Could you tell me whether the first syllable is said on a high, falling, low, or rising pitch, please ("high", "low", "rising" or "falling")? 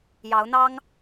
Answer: rising